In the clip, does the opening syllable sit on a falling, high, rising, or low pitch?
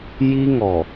high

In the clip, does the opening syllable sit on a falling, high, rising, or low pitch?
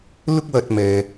high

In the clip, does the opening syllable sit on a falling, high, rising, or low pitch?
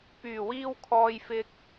low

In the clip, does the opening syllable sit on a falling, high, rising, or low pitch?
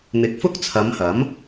rising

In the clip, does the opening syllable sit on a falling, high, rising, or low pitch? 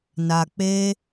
low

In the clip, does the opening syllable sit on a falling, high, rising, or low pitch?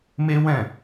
high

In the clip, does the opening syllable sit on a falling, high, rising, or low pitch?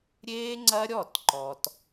high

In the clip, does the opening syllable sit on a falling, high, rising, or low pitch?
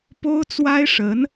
high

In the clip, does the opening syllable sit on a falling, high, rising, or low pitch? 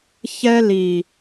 high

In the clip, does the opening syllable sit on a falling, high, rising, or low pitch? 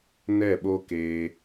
falling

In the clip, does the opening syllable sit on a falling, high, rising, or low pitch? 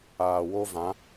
low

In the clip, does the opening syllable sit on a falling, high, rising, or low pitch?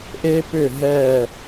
high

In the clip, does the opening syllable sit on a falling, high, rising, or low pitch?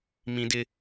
high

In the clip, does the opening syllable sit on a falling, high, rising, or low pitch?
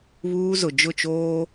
high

